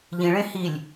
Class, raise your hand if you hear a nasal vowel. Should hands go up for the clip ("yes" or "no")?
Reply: yes